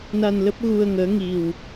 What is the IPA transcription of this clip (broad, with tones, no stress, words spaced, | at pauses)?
na˧nlə˦˥p̚ ɣu˧ə̯ŋəː˨˦ ŋi˨˩w